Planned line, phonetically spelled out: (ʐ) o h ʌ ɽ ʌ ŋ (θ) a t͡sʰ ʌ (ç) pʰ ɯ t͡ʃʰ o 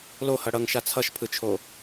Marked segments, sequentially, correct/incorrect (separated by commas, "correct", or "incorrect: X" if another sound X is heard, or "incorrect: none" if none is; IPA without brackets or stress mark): incorrect: l, incorrect: ʃ, incorrect: ʃ